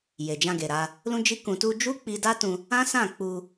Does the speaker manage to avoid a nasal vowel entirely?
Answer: no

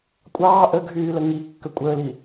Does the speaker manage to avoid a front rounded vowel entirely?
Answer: no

